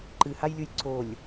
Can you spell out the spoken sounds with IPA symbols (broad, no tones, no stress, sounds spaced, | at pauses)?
ǃ ɨ h a j lʲ u j ǀ o lʲ